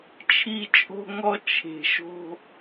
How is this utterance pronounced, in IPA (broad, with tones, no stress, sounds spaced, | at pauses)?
t͡ʃʰ i˦ t͡ʃʼ o̤˦ ŋ ɔ˦ t͡ʃʰ e̤˨ ʃ o̤˦